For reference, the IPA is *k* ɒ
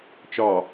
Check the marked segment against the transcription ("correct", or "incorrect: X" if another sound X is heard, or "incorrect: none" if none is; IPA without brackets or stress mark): incorrect: t͡ʃ